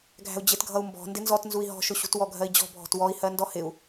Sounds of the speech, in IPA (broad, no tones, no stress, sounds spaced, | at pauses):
ɡʱ æ̤ u̯ d͡ʑ ɪ t ɡʱ ʌ u̯ m b ɔ̤ n d ɪ n z ɔ t n z u i̯ ɦ ɔ̤ ʃ ʊ ɕ ṳ t w ɔ ɡʱ ɜ i̯ d͡ʑ ɔ̤ bʱ ɔ̤ t w ɔ i̯ h ɜ n d ɔ h ɪ u̯